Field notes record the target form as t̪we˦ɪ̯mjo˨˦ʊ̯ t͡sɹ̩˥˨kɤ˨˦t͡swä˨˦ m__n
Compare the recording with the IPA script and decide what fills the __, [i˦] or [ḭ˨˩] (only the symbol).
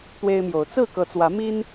i˦